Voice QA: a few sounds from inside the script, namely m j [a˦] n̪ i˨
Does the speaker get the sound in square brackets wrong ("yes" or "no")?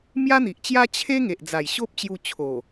no